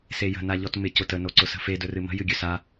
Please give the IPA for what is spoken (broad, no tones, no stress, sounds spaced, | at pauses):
s e j ə̤ n a ʎ ɔ t m ɪ c ʊ t ə n o ǀ ʊ s ə̤ f e d ɵ r ɨ m ə̤ j ɨ ɡʲ ɵ s a